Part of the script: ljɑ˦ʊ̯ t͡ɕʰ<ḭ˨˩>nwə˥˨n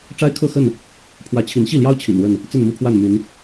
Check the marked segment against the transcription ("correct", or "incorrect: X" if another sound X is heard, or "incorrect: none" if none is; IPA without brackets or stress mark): correct